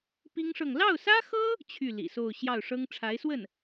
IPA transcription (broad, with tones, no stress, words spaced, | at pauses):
pi˥ŋʂɤ˥˧ŋ lɑ˥˩ʊ̯sä˥xɤ˥ | t͡ɕʰy˥˩lḭ˨˩so˥˧ʊ̯ ɕjɑ˥˩ʊ̯ʂɤ˥ŋ ʈ͡ʂʰa˧˥ɪ̯swə˥˩n